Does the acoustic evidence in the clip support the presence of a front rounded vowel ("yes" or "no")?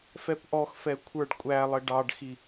no